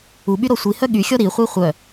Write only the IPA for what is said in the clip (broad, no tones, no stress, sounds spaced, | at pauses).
u ɓ y ɾ ɔ sʷ i h œ ɠ y xʲ ɔ ɾ i χʷ i χʷ œ